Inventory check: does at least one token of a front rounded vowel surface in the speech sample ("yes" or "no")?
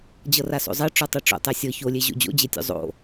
no